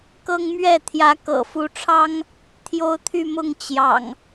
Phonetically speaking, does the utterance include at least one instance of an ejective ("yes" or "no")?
no